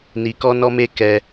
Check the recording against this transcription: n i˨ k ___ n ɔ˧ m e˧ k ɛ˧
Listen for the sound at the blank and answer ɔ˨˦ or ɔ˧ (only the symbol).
ɔ˧